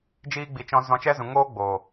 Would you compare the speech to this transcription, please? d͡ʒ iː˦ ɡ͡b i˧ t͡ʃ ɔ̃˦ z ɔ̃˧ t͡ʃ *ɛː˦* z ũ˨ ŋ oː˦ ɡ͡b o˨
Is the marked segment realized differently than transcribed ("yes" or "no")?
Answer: yes